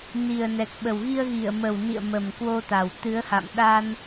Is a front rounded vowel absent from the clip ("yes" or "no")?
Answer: yes